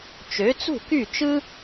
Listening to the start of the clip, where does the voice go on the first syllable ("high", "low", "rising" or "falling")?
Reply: rising